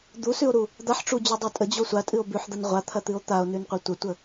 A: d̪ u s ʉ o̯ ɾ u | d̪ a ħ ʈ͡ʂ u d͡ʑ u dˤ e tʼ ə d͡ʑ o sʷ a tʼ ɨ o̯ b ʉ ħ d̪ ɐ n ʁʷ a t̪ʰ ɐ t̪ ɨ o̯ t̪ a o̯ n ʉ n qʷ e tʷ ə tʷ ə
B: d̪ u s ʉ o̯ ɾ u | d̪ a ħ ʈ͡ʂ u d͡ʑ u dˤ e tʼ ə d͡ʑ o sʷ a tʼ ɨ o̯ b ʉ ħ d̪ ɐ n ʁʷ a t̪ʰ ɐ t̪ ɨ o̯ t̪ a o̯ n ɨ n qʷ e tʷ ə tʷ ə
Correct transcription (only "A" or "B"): A